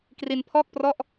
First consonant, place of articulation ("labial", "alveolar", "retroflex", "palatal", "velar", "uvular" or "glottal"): velar